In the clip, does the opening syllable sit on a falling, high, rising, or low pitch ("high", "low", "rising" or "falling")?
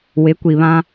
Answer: rising